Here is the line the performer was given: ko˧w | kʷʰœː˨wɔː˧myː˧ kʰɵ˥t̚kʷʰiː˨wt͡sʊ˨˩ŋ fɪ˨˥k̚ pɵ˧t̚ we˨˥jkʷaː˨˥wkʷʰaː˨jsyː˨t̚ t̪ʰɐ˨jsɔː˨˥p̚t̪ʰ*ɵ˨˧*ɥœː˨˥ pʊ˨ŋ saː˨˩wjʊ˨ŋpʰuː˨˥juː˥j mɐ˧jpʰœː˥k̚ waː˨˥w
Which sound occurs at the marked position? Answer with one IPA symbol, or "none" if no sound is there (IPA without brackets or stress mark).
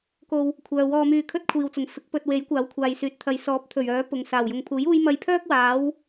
ɵ˨˩